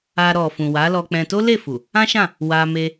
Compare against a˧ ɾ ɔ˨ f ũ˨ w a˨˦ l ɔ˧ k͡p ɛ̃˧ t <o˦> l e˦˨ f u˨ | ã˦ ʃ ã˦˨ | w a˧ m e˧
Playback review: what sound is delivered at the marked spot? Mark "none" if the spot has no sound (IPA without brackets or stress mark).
o˦